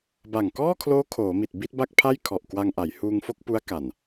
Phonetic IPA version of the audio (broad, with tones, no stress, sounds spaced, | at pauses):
b a˨˩ ŋ k ɔː˥˩ kʰ l oː˦˥ kʰ oː˩˦ m i˨˩ t̚ b i˥˩ t̚ b a˥˩ k̚ pʰ a˥˩ j kʰ ɔ˨˩ ʔ k w a˧ ŋ ʔ a˩˦ j h uː˧ ŋ f o˥˩ k̚ p u˦˥ a̯ k a˨˩ n